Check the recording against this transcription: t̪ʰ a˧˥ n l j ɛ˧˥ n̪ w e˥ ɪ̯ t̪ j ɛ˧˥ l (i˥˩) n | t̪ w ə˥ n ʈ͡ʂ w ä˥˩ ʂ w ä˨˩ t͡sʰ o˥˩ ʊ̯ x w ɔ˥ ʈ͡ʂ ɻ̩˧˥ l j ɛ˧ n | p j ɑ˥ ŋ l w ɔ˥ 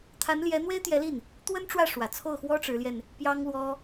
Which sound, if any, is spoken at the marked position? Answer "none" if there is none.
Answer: i˥˩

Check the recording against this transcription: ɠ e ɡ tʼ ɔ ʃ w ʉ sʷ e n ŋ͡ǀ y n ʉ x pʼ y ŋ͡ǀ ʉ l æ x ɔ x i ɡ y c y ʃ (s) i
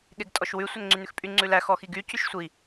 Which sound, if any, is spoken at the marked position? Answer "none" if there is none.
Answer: sʷ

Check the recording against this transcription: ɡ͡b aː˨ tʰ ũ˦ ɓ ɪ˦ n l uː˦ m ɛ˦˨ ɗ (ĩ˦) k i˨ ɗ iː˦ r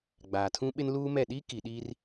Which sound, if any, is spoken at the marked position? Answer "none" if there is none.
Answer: i˦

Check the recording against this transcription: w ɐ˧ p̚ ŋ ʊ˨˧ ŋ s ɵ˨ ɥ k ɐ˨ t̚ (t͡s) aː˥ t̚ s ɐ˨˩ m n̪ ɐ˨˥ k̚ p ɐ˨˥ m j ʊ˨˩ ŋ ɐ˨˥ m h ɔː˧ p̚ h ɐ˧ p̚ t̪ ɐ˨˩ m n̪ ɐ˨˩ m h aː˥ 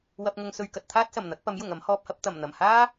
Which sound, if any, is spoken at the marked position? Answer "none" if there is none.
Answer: t̪ʰ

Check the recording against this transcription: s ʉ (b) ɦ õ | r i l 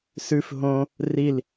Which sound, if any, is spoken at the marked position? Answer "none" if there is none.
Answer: f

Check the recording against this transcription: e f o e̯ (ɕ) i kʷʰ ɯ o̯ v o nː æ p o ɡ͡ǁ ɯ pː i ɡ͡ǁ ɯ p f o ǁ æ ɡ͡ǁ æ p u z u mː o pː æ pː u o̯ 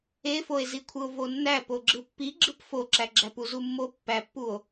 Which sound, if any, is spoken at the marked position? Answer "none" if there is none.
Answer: z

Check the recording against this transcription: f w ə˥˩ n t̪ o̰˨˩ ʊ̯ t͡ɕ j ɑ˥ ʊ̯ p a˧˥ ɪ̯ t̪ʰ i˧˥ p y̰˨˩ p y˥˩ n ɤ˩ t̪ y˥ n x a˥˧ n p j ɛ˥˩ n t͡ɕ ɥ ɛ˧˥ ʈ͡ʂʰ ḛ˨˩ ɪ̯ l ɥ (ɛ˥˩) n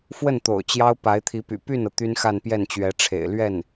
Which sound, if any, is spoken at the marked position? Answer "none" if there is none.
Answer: ɛ˥˩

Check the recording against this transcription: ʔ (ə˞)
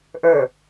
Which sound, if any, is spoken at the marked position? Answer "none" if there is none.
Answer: ə˞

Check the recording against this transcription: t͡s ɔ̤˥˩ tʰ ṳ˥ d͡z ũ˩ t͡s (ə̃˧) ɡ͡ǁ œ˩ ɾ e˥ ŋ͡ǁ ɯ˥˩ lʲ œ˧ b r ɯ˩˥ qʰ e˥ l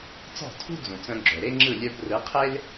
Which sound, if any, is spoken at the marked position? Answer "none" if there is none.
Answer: œ̃˧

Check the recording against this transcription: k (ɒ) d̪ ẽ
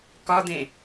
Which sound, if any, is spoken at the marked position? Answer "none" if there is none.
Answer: ɒ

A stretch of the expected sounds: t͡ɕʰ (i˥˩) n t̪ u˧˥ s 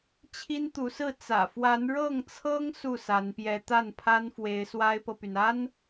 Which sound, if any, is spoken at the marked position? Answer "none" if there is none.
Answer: i˥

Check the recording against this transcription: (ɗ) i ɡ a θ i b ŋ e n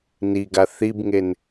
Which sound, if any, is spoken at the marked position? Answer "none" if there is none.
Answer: n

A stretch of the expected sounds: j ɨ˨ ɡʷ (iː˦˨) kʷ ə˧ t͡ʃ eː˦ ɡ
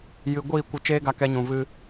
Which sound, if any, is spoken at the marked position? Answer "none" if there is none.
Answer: iː˦˨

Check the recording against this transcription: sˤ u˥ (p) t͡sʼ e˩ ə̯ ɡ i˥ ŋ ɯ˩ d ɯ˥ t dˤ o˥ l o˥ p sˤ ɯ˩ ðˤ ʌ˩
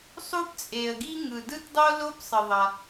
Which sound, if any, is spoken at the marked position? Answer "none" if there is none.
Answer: p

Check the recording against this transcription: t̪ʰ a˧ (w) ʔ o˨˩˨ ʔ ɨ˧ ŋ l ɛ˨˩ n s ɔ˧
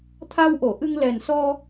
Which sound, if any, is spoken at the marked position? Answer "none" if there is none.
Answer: w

